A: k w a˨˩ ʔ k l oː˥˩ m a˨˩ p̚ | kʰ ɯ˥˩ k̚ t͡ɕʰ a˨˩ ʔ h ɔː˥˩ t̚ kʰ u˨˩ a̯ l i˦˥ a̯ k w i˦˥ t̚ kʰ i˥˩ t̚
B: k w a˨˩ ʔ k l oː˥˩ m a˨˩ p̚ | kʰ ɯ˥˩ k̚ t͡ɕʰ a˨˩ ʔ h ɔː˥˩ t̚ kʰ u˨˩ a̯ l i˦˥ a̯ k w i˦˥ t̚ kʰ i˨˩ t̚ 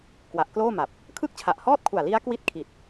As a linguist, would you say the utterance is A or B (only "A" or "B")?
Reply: B